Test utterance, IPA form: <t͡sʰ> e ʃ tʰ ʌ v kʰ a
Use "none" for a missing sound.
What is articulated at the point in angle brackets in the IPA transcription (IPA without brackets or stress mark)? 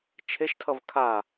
t͡ʃʰ